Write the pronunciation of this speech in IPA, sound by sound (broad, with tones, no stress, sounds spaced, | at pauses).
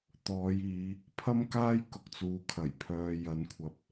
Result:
t̪ ɔː˨˧ j iː˨˧ | pʰ ɐ˥ m k aː˥ j k ʊ˨ k̚ t͡s uː˨ kʰ ɐ˨˩ j pʰ œː˧ j ɐ˨˥ n kʷʰ ɐ˨ p̚